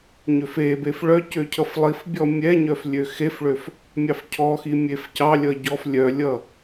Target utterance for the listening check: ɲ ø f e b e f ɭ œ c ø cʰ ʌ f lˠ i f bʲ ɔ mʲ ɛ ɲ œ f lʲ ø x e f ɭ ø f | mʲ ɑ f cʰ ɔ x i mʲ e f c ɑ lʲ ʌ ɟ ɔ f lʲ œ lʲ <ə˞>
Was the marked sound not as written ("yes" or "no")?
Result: yes